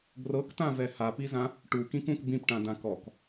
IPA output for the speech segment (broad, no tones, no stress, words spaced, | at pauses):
ɡrɤktãvɛ hapizã | ʈukĩkũk bĩpʈãdã kɔk